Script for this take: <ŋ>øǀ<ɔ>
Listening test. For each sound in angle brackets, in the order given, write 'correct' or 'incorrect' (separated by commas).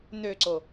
incorrect, incorrect